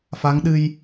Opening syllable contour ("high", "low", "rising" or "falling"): rising